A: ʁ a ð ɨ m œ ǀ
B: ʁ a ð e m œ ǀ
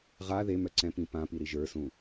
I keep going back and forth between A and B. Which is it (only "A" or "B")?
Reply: B